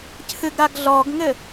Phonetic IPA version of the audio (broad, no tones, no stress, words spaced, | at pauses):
cʰɨɡɾaɡɮɔɡŋɘ